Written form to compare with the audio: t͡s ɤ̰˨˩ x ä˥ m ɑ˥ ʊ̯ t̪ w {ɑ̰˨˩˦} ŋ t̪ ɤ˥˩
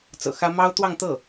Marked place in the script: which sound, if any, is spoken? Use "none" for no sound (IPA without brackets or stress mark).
ɑ˥˧